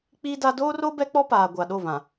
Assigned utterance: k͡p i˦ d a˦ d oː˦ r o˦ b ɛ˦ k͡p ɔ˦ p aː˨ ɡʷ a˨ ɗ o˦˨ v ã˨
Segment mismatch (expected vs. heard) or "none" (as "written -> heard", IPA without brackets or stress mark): none